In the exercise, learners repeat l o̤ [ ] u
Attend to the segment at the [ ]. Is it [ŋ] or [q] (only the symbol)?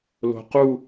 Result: q